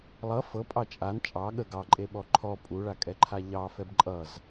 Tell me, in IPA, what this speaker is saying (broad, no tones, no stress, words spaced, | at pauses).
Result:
lˠʌ fɤpʼɑ t͡ʃʼan t͡ʃʼɑ ɠə ɡɑǃʼeɓɔ ǃʰɔ pʼuɭakʼɛǃʰa ʎɑfɛb ǃʼʌz